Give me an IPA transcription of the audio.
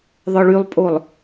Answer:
ðˤ œ ɭ y lˠ pʼ o lˠ

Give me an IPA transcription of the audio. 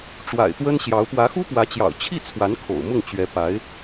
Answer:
ʈ͡ʂ w a̰˨˩ ɪ̯ t̪ w ə˥ n ɕ j ɑ˧˥ ʊ̯ p w ä˧˥ x u˥ p w ä˧˥ t͡ɕ j ɑ̰˨˩ ʊ̯ t͡ɕʰ i˥˩ t͡sʰ w a˧˥ n kʰ o̰˨˩ ʊ̯ m ʊ˥˩ ŋ t͡ɕ ɥ ɛ˧˥ p a˧˥ ɪ̯

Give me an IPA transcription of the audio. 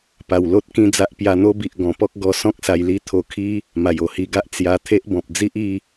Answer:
p a˨˩ w l o˦ t̚ k ĩ˥˧ d͡z a˦ ʔ p j a˧ n̪ o˦ b i˨ ʔ ɡ ɔ̃˨˩ p ɔ˦ k̚ ɡ ɔ˧ s ɔ̃˦ k̚ s a˧ j l i˦ t̪ʰ o˧ kʰ i˦ | m a˨˩ j o˨˩ h i˧ ɡ a˦ ʔ t͡s j a˧ t̪ʰ e˦ ʔ b ɔ̃˨ p̚ d͡z i˦ ʔ i˥˧

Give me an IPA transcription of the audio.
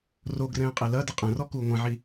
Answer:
r o ɡ r ɛ̃ː qʼ e l ɐ d ɨ qʼ ɛ̃ r ɔ k uː ŋʷ ɛ̃ ʕ i

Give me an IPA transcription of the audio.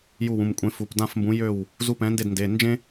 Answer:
j u˥˩ w ũ˩˧˩ m kʷʼ ẽ˨˥ f u˩˧˩ p d ã˥˩ f m b ũ˨˥ j ø˥˩ w | z u˧˥˧ p ɛ̃˨˥ n d e˥˩ d n d e˩˧˩ n d͡ʒ ẽ˥

